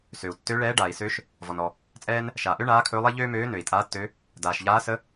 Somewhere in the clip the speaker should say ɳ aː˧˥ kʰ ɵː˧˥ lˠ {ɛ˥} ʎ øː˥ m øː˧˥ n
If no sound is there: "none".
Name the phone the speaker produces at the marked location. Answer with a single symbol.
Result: ɛ˥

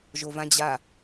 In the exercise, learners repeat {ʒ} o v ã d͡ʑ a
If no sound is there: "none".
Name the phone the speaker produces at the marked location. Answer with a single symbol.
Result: ʒ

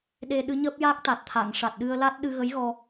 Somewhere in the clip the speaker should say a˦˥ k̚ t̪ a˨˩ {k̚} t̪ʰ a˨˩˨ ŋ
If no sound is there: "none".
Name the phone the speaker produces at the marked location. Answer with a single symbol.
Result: t̚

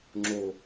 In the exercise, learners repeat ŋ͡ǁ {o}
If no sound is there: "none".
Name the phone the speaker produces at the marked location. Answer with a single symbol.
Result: o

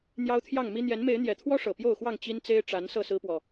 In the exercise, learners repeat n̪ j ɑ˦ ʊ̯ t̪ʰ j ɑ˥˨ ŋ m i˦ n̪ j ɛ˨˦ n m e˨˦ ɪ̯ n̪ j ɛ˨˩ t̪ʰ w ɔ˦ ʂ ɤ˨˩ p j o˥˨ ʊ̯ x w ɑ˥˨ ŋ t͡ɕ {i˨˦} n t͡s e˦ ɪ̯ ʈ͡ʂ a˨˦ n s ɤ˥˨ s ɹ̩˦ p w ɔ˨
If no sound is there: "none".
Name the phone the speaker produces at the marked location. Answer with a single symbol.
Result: i˦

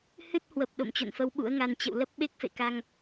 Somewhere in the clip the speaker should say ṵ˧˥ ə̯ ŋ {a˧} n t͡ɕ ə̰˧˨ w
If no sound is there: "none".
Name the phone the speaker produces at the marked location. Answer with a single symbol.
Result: a˧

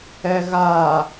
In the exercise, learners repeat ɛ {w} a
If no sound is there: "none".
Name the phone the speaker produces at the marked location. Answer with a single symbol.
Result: ɣ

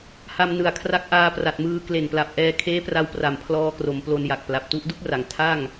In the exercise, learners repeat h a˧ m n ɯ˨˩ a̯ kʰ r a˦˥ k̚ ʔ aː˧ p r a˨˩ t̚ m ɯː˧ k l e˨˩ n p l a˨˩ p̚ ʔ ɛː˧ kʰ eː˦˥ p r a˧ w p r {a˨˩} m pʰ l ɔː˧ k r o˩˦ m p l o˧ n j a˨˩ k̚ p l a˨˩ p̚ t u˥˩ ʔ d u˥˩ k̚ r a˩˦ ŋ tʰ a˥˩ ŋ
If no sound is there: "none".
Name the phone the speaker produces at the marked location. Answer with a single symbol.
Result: a˨˩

